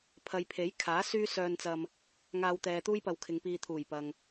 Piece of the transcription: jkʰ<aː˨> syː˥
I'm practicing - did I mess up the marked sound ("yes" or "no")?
yes